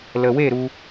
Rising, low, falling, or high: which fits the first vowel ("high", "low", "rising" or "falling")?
low